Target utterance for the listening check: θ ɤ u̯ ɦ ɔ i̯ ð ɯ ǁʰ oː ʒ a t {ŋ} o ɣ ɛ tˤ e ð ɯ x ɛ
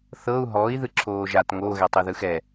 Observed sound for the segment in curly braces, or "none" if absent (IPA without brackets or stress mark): ŋ